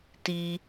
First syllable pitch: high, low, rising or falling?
high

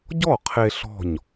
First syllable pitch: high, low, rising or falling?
falling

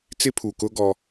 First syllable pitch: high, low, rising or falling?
high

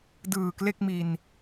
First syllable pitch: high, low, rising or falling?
low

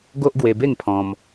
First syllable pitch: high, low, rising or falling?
high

